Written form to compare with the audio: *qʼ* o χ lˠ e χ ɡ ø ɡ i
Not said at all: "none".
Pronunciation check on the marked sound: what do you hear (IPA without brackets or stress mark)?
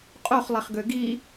qʼ